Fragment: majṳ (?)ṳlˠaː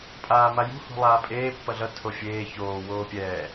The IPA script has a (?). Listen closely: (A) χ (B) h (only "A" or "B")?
B